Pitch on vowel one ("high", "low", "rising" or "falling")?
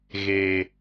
low